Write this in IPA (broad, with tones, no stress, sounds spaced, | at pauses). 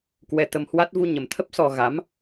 k w ɛ˧ t̪ ə˧ m h w a˦˥ t̚ v u˧ ɲ ə˨˩ m t̪ʰ ə˦˥ p̚ s ɔ˧ ɣ a˨˦ m